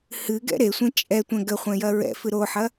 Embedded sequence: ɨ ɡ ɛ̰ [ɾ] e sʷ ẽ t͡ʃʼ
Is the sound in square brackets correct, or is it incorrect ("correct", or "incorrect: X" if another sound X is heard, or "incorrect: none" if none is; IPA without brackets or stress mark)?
correct